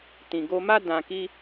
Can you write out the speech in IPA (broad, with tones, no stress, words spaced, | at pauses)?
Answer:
tĩ˨ɡo˧ma˦ dã˧ki˦